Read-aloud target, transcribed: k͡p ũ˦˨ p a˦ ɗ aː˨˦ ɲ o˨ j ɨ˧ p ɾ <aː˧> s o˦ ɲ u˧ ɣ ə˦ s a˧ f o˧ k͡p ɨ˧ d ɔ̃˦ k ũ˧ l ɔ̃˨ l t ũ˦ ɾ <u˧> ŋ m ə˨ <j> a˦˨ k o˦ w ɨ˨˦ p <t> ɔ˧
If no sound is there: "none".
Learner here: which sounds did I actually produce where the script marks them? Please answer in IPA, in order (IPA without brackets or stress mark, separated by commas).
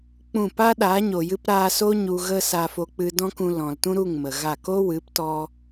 aː˧, u˦˨, ɣ, t